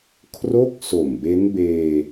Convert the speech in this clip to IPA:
kʰ r o˥˩ k̚ s o˨˩ m b e˦˥ n b eː˧

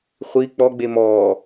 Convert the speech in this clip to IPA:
χʷ i k͡p ɔ ɡ͡b e m ɔː

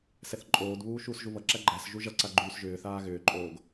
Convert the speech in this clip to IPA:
s ɛ θ ǃʼ oː d β uː ʃ uː s ʒ u β ʌ ǁ æ ɡ͡ǃ æ s ʒ u ʒ ʌ ǀ a ɡ͡ǃ yː s ʒ ʏː θ aː ɣ ʏː ǃʼ oː ɡ

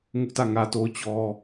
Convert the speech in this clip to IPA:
ŋ ʊ˦ ʔ t ä˦˨ ŋ ä˦ t o˦ ʊ̯ t͡ɕ ɔ˦

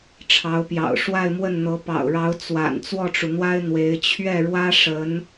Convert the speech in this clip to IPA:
ʈ͡ʂʰ ɑ˧˥ ʊ̯ p j ɑ̰˨˩ ʊ̯ ʂ w a˥˧ ɪ̯ m w ə˥˩ n n̪ ɤ˧˥ p ɑ̰˨˩ ʊ̯ ɻ ɑ˧˥ ʊ̯ t͡s w a̰˨˩ n t͡s w ɔ˥˩ ʈ͡ʂ u˩ n̪ w a˥ ɪ̯ n̪ w e˧˥ ɪ̯ t͡ɕʰ ɥ ɛ˥˩ ɻ w ä˥ ʂ ə˧˥ n

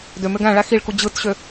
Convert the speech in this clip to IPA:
d ø m ø ɡ æ̃ ɭ æ x i ɭ k u d͡ʑ ɯ t ɕ ø

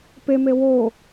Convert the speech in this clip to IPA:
p e m e w o

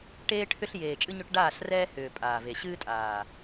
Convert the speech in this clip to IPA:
ʈ eː˦ ʈʰ ʏ˦ ɬ j eː˨ t͡ʃʼ ɨ˦ ɲ ʏ˦ ʈ ɖ aː˦˨ ɬ r ɛː˦ h ʏː˨ pʼ aː˨ v e˨ ɕ ɨː˦ tʼ aː˨

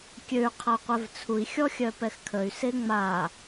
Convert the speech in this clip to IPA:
kʲ ø y̯ qʰ a qʷ ɛ v t͡sʰ u i̯ xʲ ɔ xʲ œ p ɛ x kʰ ə y̯ s e ŋ͡m a

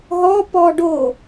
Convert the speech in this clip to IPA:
ɦ ɔ p ɔ ɖ o

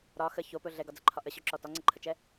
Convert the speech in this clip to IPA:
ɾ ɒ x ə ç o p ɵ ɮ ɛ ɡ ɒ d͡z ə ǃʰ ɒ ʔ ə ɕ ɵ ǁ ɔ t ɒ ŋ͡ǀ ə ǃʰ ə t͡ʃ ɛ

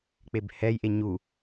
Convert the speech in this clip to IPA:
k͡p e b h ɛ j ʔ e ɲ u

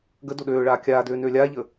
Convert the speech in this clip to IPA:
ɡ ə d o ɗ øː ɭ aː kʲ aː d øː n øː lʲ aː ʎ əː

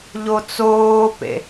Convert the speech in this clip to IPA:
ʎ o t͡s oː p ḛ

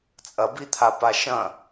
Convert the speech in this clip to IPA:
t͡sʼ ɐ b i t̪ʰ a p a ʃ ɐ̃

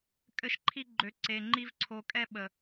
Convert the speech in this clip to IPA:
kʼ ɘ˦ ʃ ǃʰ i˦ ɡ͡ǃ ø˧ ǀ e˧ ŋ͡ǃ i˦ v ǀʰ o˧ kʼ ɛ˦ ɓ ə˨

